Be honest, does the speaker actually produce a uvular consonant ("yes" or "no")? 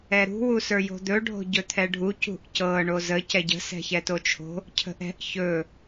no